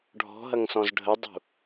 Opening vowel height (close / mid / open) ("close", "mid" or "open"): mid